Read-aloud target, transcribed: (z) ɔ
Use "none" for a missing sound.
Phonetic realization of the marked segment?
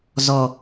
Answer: z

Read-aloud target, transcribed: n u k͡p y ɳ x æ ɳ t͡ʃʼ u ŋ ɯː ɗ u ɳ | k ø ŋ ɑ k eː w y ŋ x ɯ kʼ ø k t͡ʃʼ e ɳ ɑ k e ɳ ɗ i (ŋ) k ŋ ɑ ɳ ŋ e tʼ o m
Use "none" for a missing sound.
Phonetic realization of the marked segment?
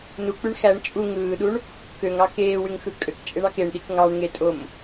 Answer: none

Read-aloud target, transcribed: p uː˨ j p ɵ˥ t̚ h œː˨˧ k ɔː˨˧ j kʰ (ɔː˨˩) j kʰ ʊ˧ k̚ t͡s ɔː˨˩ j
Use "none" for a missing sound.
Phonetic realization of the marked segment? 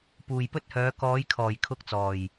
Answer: ɔː˨˩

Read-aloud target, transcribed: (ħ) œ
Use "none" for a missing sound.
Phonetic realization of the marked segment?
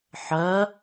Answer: ħ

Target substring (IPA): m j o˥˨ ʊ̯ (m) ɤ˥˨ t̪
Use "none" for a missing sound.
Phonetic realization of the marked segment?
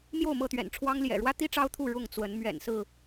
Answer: m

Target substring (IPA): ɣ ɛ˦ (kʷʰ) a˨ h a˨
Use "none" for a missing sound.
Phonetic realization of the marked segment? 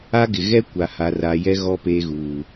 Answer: kʷ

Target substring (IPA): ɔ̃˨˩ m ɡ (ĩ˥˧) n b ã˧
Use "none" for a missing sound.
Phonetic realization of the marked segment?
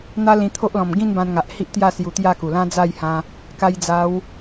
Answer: ĩ˥˧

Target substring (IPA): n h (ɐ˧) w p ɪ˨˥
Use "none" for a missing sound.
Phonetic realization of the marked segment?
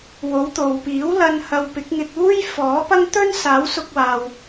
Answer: ɐ˧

